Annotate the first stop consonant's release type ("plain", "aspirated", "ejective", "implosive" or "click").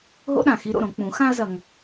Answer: implosive